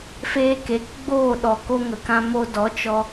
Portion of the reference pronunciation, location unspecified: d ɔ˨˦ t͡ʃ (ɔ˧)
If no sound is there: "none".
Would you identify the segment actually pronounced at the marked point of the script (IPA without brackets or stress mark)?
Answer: ɔ˧